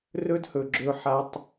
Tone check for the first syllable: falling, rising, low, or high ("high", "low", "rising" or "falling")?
high